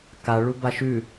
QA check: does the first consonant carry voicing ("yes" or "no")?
no